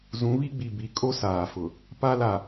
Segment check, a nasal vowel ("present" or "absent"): present